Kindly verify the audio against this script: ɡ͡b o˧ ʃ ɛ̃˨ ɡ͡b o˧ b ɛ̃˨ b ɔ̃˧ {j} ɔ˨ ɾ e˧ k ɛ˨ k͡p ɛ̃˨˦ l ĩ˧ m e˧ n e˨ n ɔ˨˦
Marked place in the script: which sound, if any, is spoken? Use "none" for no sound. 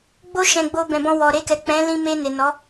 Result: w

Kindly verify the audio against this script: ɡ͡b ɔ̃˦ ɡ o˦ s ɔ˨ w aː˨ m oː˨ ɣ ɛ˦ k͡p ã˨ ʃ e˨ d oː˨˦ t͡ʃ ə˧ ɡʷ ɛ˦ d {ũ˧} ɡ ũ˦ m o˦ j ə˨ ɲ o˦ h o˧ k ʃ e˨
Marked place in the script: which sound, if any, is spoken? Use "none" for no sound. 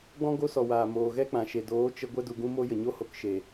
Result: u˧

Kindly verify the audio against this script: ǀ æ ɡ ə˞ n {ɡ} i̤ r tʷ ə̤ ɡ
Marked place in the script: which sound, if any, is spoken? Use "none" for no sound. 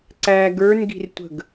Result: ɡ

